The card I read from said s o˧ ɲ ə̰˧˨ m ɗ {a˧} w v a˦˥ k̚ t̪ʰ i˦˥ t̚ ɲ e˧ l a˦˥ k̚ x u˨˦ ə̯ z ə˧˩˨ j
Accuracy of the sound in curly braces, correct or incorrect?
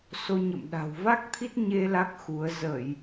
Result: incorrect